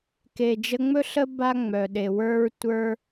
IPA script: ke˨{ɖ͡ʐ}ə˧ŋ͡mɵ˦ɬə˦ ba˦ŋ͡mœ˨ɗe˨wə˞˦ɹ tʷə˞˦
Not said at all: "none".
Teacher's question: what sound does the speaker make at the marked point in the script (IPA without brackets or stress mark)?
d͡ʒ